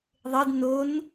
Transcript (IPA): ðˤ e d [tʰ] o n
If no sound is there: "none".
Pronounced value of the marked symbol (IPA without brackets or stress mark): n